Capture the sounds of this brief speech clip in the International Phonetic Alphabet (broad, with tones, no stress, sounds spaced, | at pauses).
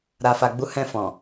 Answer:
ɾ a˨ f a˨ ɡ͡b u˨˦ h ɛ̃˧ f ɔ̃˨